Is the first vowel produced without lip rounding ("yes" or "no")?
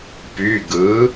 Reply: no